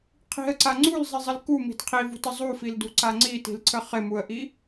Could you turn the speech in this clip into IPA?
qʰ i̤ ə̯ ǀ a ŋ͡ǀ u l zˤ i zˤ ɪ l k u m i̤ d qʰ i v ṳ t ə zˤ u f i l d ṳ ǀ a ŋ͡ǀ i t i̤ l ǀʰ ə χ ɪ m u ə̯ ʔ i

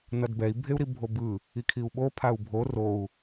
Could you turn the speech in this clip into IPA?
n ʌ d b ɛ i̯ bʱ e u̯ ɾ i bʱ o b ɯ | i kʰ i u̯ ɓ o pʰ a u̯ bʱ o r o u̯

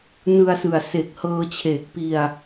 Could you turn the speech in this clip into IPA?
n ɯ˧ a̯ s ɯ˨˩ a̯ s e˨˩ k̚ h ɤː˧ t͡ɕʰ eː˨˩ k̚ p i˧ a̯

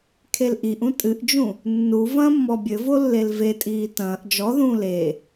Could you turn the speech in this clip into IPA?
kʰ e l ʔ i ʔ ũ tʼ ɨ ʔ d͡ʒ ũ | nː u v ɐ̃ː mː ɔ bʲ ɘ v o lː e l v e tʼ iː t ɐ̃ː ʔ d͡ʒ ɔ ð ũː l e

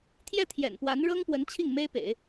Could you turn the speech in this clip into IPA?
t̪ʰ j ɛ˥˩ t̪ʰ j ɛ̰˨˩ n p w a˧˥ n ɻ ɤ˥ ŋ p w ə˧˥ n t͡ɕʰ i˥˩ ŋ m e˥ ɪ̯ p ḛ˨˩˦ ɪ̯

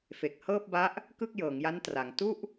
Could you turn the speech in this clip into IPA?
f e˨˩ k̚ h ɤː˥˩ p̚ b a˦˥ ʔ | k ɯ˥˩ k̚ j ɤː˩˦ ŋ j a˦˥ n t r a˩˦ ŋ t u˥˩ ʔ

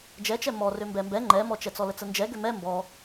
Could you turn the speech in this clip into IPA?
d͡ʒ ɛ t͡ʃ ɛ m ɔ r ø m b ɛ m b ɛ ŋ͡ǃ ɛ m ɔ t͡ʃ ɛ t͡s ɔ l ə t͡s ə n d͡ʒ ɛ ɡ ø m ɛ m b ɔ

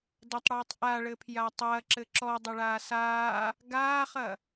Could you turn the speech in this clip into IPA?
d ɐ tˤ ɽ ɨː tˤ ʔ a ɭ ɘ pʰ j a tˤ ɐː ǁ ɘ ǁ ɔ dˤ ɐ ɭ aː s aː | ɡ aː χ ɐ

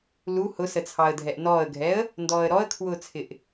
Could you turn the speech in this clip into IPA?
l u h ʊ s ə t͡sʰ ɑ ə̯ dʱ ɛ ʔ n ɔː ə̯ ɡʱ ɛ ə̯ | n d ɔː ə̯ ɾ ɔ ə̯ kʰ w ʊː t͡sʰ ɪ ʔ

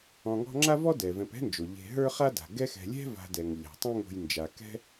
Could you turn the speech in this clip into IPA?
ɔ̃˨ ŋ ɔ̤˦ ŋ͡ǁ a˥ v ɔ˥ d ɛ˩ v ɛ̃˨ p ɛ̤˥ n d͡ʒ o˩ ʎ e̤˨ ɦ ə˞˦ χ a˦ d a̤˩ ɡ ɛ˥ x ɛ̤˨ lʲ ɛ̤˥ v a̤˨ d ɛ˩ ŋ ʎ a̤˩ tˤ ɛ̃˦ ŋ o̤˨ j n d͡ʒ a˩ k ɛ̤˦

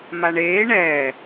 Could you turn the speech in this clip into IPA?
m a ɳ eː ɳ ɛː

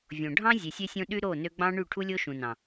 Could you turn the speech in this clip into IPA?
vʲ õ˨ ɖʱ ɑ̃˦ zʲ e˨ sʲ ø˦ sʲ õ˦ ɗ y˦ ɾ o˦˨ n ø˧ ɡ͡b ɑ̃˦ ɳ y˦˨ ʈʰ u˦ lʲ o˦ ʃ ũ˨ n ɑ̃˨

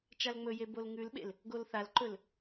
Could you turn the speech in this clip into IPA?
t͡ʃ a l ŋ͡m ɵ j e b o l ŋ ʉ l ɓ ḛ l | ɡ o l θ a l ǃ ɵ l

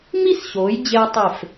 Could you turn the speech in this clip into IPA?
m i˥˧ s ɕ oː˩˧ j d͡ʑ eː˧ tˤ e˧˩ f

